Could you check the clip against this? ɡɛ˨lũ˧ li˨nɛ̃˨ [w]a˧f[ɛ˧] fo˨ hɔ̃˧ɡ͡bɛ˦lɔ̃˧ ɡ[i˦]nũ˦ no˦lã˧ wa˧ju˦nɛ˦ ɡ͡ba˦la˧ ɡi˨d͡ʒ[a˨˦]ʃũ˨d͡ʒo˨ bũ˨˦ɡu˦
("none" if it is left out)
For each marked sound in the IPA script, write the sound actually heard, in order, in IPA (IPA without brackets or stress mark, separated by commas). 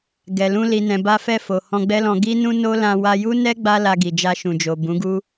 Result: b, ɛ˧, i˦, a˧